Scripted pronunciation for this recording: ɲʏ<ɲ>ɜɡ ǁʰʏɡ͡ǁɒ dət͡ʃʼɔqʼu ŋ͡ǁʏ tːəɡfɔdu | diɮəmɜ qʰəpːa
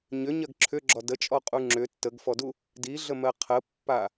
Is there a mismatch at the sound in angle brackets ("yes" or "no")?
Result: no